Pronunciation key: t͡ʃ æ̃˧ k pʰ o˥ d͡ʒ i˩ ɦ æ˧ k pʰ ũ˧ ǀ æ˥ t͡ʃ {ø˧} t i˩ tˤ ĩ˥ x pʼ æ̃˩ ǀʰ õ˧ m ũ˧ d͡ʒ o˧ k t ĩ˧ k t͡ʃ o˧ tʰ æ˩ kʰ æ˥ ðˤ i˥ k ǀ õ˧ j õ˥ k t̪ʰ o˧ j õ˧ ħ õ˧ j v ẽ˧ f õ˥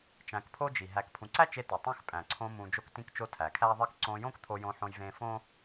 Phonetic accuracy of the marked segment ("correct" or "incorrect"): incorrect